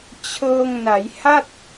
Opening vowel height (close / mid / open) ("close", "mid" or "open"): mid